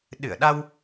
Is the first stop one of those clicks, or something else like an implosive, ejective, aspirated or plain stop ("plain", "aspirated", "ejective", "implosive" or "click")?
implosive